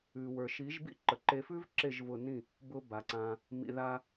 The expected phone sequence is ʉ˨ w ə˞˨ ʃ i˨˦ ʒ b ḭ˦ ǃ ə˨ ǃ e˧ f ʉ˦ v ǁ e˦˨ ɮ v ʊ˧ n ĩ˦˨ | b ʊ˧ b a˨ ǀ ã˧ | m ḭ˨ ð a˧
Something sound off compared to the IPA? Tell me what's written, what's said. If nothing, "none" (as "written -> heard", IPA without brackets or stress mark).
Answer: ɮ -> ʒ